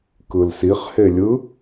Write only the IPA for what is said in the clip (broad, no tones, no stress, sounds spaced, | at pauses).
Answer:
k ɯ l s i χ h e lʲ ɯ